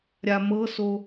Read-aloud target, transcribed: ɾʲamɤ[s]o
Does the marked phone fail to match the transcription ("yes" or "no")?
no